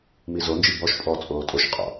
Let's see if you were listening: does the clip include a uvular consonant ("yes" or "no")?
yes